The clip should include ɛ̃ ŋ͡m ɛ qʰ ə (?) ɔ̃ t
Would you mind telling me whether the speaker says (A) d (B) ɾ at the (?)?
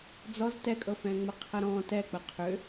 B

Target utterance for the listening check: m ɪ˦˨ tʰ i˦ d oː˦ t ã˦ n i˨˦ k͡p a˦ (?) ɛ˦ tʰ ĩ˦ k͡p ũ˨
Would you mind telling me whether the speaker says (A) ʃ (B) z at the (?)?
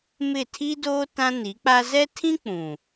B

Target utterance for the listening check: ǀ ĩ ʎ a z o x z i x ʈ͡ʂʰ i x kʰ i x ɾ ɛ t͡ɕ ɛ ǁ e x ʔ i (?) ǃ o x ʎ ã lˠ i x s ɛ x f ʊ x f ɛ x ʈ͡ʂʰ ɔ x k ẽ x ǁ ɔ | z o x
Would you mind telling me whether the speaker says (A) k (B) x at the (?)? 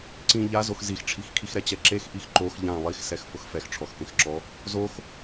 B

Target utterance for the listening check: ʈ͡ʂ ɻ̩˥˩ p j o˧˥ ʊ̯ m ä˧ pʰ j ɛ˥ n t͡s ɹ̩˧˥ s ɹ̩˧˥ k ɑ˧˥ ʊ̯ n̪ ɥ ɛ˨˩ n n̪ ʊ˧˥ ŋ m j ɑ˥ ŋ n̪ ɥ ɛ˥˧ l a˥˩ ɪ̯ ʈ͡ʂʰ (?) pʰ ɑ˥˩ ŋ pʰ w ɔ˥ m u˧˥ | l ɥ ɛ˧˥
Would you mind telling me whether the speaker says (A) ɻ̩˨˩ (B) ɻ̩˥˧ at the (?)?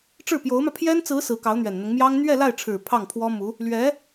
A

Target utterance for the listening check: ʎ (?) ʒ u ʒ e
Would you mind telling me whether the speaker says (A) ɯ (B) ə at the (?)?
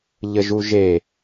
B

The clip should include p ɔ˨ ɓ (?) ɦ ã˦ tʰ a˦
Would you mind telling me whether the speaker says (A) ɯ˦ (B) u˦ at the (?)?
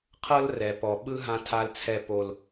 A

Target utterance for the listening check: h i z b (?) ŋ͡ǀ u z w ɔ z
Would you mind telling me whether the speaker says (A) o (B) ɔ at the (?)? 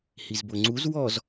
A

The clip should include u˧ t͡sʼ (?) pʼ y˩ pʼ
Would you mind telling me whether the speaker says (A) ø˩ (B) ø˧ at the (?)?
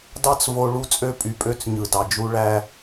B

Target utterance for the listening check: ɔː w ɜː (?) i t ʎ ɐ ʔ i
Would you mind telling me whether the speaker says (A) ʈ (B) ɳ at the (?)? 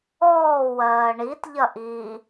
B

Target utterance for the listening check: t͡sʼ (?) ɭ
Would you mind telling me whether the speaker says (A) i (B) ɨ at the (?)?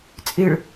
B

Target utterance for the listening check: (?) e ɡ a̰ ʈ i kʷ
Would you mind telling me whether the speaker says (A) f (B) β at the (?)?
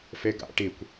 A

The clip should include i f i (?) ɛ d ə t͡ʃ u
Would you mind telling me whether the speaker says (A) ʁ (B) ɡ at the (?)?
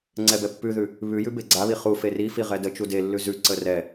A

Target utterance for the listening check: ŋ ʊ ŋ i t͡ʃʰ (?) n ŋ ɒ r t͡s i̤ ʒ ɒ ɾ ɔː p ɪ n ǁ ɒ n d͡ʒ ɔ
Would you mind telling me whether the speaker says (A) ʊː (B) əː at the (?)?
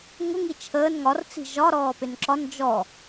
B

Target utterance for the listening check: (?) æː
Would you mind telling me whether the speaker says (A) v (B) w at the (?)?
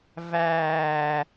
A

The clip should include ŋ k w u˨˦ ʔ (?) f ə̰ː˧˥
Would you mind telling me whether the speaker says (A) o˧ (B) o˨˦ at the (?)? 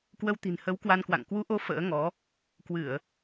B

